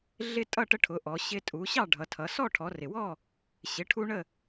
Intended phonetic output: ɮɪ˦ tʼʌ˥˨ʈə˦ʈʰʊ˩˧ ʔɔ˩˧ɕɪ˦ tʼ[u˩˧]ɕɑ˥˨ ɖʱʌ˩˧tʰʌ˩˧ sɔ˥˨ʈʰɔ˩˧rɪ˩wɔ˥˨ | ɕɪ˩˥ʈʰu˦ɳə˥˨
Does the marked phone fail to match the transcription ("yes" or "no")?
no